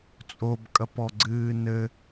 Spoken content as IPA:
t͡sʼ o b kʼ ɐ p ɔ ɡ͡ǀ ɨː n ɘ

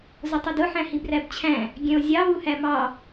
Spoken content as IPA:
z ʊ tˤ ʊ d ʊ ħ æ̃ h i b r æ b t͡ɕʰ æ̃ | ɡʲ ɛ̃ o̯ zʲ ɑ β u h æ m ɑ

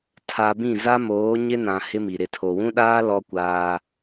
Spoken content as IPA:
tʰ a˨ b ĩ˦˨ z a˦ m oː˨˦ ɲ ɪ˦ n ã˨ h ɪ˦ m i˨ ɾ ɪ˨ tʰ o˨ w ũ˦ ɗ aː˦ l ɔ˦ kʷ aː˦

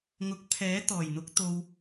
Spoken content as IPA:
ŋ ʊ˨˥ k̚ pʰ ɛː˨˥ t̪ ɔː˨˩ j n̪ ʊ˨˥ k̚ t̪ o˨ w

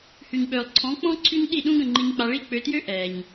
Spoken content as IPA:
h y˩ ɲ ɓ øː˩ lˠ ǀʰ ɔ̃˩˥ k͡p ɔ̃˥ ǀʰ y˥ ɲ ɗ i˥˩ ɗ ũ˥ ɡ ə̃˥˩ ŋ͡ǃ i˧ ɲ k͡p a˧ ɭ i˥˩ k͡p ø˧ t j ø˥ ʔ ɛː˩ ɲ

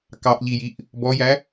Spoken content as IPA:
k ɑ ʔ ʎ i j i ʔ | b ɔ j æ

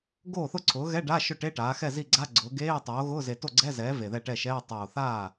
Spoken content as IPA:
ɡ oː˥˩ θ ʊ˥˩ ǀʰ ʊː˩˥ ɣ ɛ˧˥˧ ɖ a˧˥˧ ʃ ʊ˥˩ ʈ e˧˥˧ ʈ aː˩˥ x ɛ˥˩ z i˥˩ ɡ͡ǀ a˧˥˧ ɡ͡ǀ ʊː˩˥ ɡ eː˧˥˧ tˤ oː˩˥ ɣ ʊː˧˥˧ z e˨˩ t o˥˩ ɡ͡ǀ ɛ˧˥˧ z ɛː˩˥ v e˨˩ ð ɛ˥˩ ʈ ɛ˥˩ ʃ ɛː˧˥˧ tˤ oː˨˩ θ aː˥˩

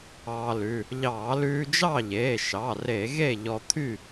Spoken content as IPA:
ɑː˧ l ʉ˩˧˩ | ʎ ɑː˧˩˧ l ʉː˧ d͡ʒ ɑ˥˨ ʎ eː˩˧˩ ʃ ɑ˩˧˩ r e˧˩˧ ɣ e˥˨ ʎ ɔ˧ t̪ʰ y˥˨

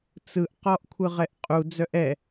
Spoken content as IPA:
t͡s ɯ ʔ q ɔ ʔ kʷʰ ɯ ʁ ɛ ʔ qʼ u d͡z œ ʔ ɛ

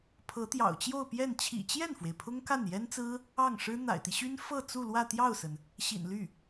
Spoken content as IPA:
pʰ ɤ˧˥ t̪ j ɑ̰˨˩ ʊ̯ t͡ɕ j o˥˧ ʊ̯ p j ɛ˥˩ n t͡ɕʰ ḭ˨˩ t͡ɕ j ɛ˥˩ n f w e˩ ɪ̯ pʰ ʊ˥ ŋ k a˥˩ n j ɛ˥ n t͡s ɹ̩˥ | ɑ˥˩ ŋ ʂ ɻ̩˥ n̪ a̰˨˩ ɪ̯ t̪ i˦ ɕ y˥ n f ɤ˥˧ t͡s u˥˧ l w ä˥˧ t̪ j ɑ˥˩ ʊ̯ s ə˩ n | ɕ ḭ˨˩ n l y˥˩

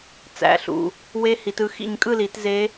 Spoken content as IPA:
t͡s æ̰˩˧˩ ɬ ṵ˩˧˩ | w e˦˥ h i˨˦ t ɯ˦˥ x ḭ˥˧ ɲ kʼ ɯ˥˧ l i˨˦ t z e˦˥

